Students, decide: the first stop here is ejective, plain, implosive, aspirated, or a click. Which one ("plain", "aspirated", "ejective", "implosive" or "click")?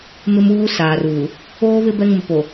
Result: plain